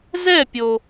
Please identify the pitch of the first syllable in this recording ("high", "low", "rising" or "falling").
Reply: falling